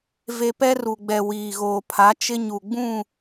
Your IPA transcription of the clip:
v e˨ p ɛ˦ r u˨ ɡ͡b ɛ˨ w iː˨ ɣ oː˨ pʰ a˨˦ t͡ʃ ɪ˦ ɲ u˨ ɡ͡b ũ˦˨

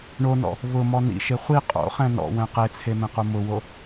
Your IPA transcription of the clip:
ɳ o n ɔ̰ | β ʊ m ɔ n ḭ ʃ e χʷ i qʼ o̰ χ ɛ̃ n ɔ̰ w ɛ̃ q e t͡sʰ e m ẽ q u m ʊ w o

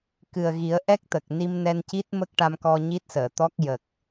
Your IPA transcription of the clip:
k ɨ˨˩ ə̯ ɣ i˨˩˦ ə̯ ʔ ɛ˦˥ k̚ t̪ ə˨˩ k̚ n i˧ m n ɛ˧ n c i˦˥ t̚ m ə˦˥ k̚ ʈ a˧ m k ɔ˧ ɲ i˦˥ t̚ s əː˨˩˨ t̪ ɔ˦˥ k̚ j ə˨˩ k̚

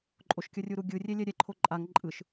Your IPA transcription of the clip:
ǃʼ o ʃ kʲ ʌ rʲ u ɾ u ɡʲ ɯ rʲ e lʲ ɛ ɾʲ ɛ ǃʰ o ǃʼ a ŋ ǃʼ ɯ ʃ

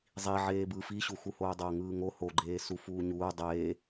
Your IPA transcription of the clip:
zˤ i ʕ eː b ɯ f i ɕ u x u h oː dˤ oː ŋ ɯː ŋ o h o ɡ͡ǃ eː s u f uː ɲ uː dˤ eː

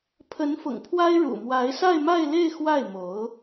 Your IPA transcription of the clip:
pʰ ə˧˥ n f ʊ̰˨˩ ŋ pʰ w a˥ ɪ̯ ɻ ṵ˨˩ m w a˧˥ ɪ̯ s a˥˧ ɪ̯ m a˥˧ ɪ̯ l e˥˧ ɪ̯ x w a˥˩ ɪ̯ m o˧˥ ʊ̯

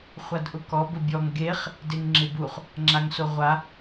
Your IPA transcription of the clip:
χʷ a d ʔ ʊ k ɔ b ʊ bʲ ɔ ŋ ɡ e χ | d e ŋ ŋ͡ǁ ɪ b u χ | ŋ͡ǁ a ŋ s o ʁʷ a

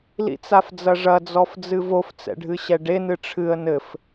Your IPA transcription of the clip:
l ḭ t͡s a f d͡z ɐ ʐ ɐ d͡z ɔ f d͡z ɨ v o f t͡s ɛ̰ ɖʱ ɨ ɕ ɛ ɖ e n ɨ ʈ͡ʂʰ ɨ ə̯ n ɘ f

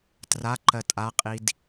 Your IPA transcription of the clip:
t r a ǃ ɜ tʼ a qʼ i d

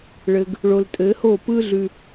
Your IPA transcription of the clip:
ɭ ɘ˨ ɡ | ɭ o˨ l tʼ ɘ˨˦ h o˦˨ p ɯ˦ ɮ ʉ˨

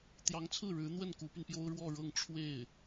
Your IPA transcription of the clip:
t̪ j ɑ˧˥ ŋ t͡sʰ ɹ̩˥˩ ɻ ɻ̩˧˥ n̪ w ə˥˩ n k u˧˥ p y˧ n p j o˥ ʊ̯ ɻ w ɔ˥˧ ɻ ɤ˥˧ ŋ ʈ͡ʂʰ w e˥˩ ɪ̯

